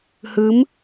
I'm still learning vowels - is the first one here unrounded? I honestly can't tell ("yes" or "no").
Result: yes